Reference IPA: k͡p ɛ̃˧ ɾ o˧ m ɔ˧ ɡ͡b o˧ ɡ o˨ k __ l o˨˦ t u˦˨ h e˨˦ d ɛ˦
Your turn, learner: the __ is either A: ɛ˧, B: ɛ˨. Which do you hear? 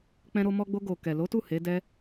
B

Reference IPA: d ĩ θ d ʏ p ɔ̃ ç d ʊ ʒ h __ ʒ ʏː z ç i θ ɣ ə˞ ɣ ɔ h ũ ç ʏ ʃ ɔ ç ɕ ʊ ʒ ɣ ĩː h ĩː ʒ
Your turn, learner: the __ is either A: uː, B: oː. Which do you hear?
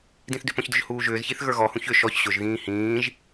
A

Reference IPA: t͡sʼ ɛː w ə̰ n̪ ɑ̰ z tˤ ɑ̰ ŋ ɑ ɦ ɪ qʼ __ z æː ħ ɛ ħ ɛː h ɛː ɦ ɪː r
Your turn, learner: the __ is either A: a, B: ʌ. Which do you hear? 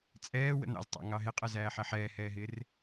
B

